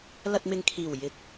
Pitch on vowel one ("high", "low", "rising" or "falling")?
low